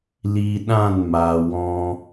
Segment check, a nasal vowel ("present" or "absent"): present